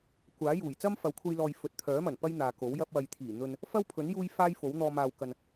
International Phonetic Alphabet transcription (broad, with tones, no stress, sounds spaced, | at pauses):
kʷ aː˨˥ j uː˨˩ j t͡s ɐ˥ m f ɐ˨˥ w kʷʰ ɐ˧ j l ɔː˨ j f ɵ˨ t̚ t̪ʰ œː˨˥ m ɐ˨˩ n p ɐ˥ j n̪ aː˨ k o˨˥ w j ɐ˧ p̚ w ɐ˨ j t̪ʰ iː˨˩ n̪ ɵ˧ n | f ɐ˥ w pʰ ɵ˨˥ n j uː˥ j f aː˥ j f o˨˥ w n̪ ɔː˧ m aː˨ w k ɐ˨ n